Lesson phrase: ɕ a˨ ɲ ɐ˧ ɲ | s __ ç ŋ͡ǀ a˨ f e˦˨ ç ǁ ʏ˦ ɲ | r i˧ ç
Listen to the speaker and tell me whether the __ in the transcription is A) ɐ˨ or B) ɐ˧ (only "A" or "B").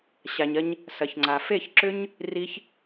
A